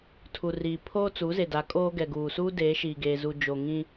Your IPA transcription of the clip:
tʰ u˨ r iː˨ pʰ oː˦ t͡s u˨˦ z e˨ d a˨˦ kʼ oː˦ ɡ ɛ˨ ɡ uː˨ s uː˦ d eː˨˦ ʃ iː˨ ɡ eː˨ z u˨ d͡ʒ o˨ ŋ ĩ˦

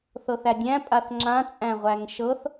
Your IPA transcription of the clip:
θ ɤ θ æ dʲ æ̃ pʼ a θ ŋ͡ǁ ã t͡sʼ æ̃ ʁʷ æ ŋ ʃ ɤ θ

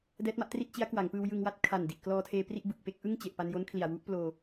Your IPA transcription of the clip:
d ɛː˦˥ t̚ m a˥˩ ʔ t r i˥˩ t̚ t͡ɕ i˦˥ a̯ k w a˩˦ ŋ p ɯː˧ w j ɯ˧ ŋ w a˥˩ t̚ kʰ a˨˩ n d i˨˩ ʔ k l ɔː˧ tʰ eː˧ p r i˥˩ ʔ b ɯ˨˩ k̚ p e˥˩ k̚ ʔ ɯ˥˩ ŋ t͡ɕ e˨˩ ʔ p a˧ n j o˦˥ n kʰ l i˨˩ a̯ w u˦˥ ʔ p l oː˧

